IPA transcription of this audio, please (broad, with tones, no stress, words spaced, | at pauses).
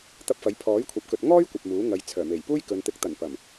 t̪ɐ˧p̚fɐ˨˥j pʰɔː˨˥jkʷʰɐ˨˥p̚kɵ˨t̚ŋɔː˥j kʷɐ˨p̚muː˨˥ŋɐ˨j t͡sʰœː˨˩me˨˩j puː˥jkɵ˨n t̪ɪ˨˥k̚t̪ɐ˨˩n pɐ˨˩m